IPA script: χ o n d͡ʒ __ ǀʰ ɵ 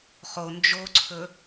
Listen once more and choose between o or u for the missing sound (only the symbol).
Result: o